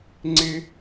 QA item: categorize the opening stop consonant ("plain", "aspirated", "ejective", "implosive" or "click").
click